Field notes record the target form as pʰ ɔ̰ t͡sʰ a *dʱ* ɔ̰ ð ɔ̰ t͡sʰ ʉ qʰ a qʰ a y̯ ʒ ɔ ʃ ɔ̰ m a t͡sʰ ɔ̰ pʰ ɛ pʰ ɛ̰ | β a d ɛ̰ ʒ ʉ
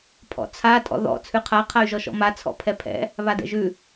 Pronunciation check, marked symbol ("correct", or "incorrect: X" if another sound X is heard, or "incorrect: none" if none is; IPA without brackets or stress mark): incorrect: tʼ